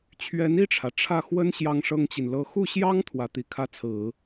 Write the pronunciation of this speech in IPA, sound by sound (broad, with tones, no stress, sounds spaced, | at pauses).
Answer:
t͡ɕʰ ɥ ɛ˧˥ n i˥˩ ʈ͡ʂʰ ä˩ ʈ͡ʂʰ ä˥˩ x w ə˥ n ɕ j ɑ˥ ŋ ʂ ɤ˥ ŋ t͡ɕ i˨ n l ɤ˥ x u˥˩ ɕ j ɑ˥ ŋ t̪ʰ w ä˧˥ t̪ i˨˩ kʰ ä˥˩ t͡sʰ ɹ̩˨˩˦